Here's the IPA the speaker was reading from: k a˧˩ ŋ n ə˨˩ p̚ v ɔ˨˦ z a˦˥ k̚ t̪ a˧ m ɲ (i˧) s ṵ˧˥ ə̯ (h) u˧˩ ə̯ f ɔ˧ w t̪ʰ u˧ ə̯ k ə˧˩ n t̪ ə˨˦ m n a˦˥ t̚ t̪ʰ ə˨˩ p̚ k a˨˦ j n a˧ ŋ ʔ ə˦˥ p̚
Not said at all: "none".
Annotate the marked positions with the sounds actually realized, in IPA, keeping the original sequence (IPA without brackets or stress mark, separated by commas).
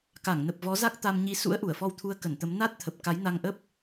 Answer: i˧, ʔ